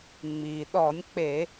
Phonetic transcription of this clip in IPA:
ŋ͡miː˩ɗɔ˧˩˧nʲk͡pe˧˩˧

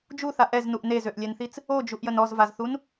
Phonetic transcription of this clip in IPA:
d͡ʒuθa ʔɛznuʔ nezøʔlʲɛnθit͡s | od͡ʒuʔjən ɔzvazθun

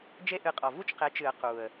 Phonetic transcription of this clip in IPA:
d͡ʒe˥ʔɨ˧qʼɔ˨˩ vu˥t͡ʃqe˨˥t͡ʃɨ˨˩˦ə̯ qu˨˩ə̯

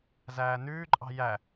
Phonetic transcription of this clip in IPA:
zæːnʉːǃʼɑ̤ jæ

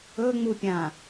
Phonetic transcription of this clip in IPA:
ɵŋ͡mupʲã

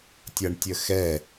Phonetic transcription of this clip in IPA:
tʲʌɳtʲəxɛ

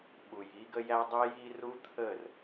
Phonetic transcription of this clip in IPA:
ɓu˨j i˦ɡə˦jæ˦ dˤi˦ji˦ru˦ t̪ʰə˦˨r

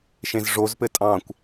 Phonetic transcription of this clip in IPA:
ʃẽzʐozpɘ tʼɑ̃kʷ

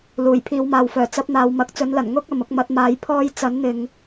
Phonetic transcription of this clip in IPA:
luː˨˩jpʰiː˨˧wmaː˨wfœː˨˩ t͡sɐ˨˥p̚n̪aː˨wmɐ˨k̚ t͡sɵ˨˧nlɐ˨˩n ŋʊ˥k̚ ɐ˨mʊ˧k̚mɐ˧t̚maː˨˧j pʰɔː˧j t͡sɐ˨˥nn̪ɪ˨ŋ

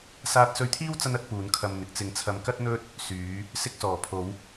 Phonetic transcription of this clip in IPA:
saː˧t̚sɵ˧ɥt̪ʰiː˥w t͡sɐ˥n ɐ˥t̚puː˨˧nkʰɐ˧m n̪ɪ˨˥k̚t͡sɪ˧ŋt͡sʰɐ˧m kɐ˥t̚n̪ɵ˥t̚ | syː˨˧ | sɪ˧k̚sɔː˨˩pʰo˨˧w

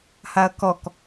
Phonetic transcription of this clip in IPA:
haɐ̯kɔk

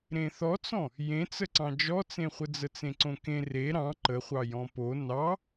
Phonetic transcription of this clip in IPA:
ɾẽθɔt͡sɔ̃ | jẽt͡səǀɑ̃ d͡ʒɔt͡sẽχʷə d͡zət͡sẽǀõkẽ re ɾɑ̃ ǃəχʷɑ jɔ̃po nɑ

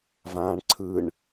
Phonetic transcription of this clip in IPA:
vãːɳǀʰɯɳ

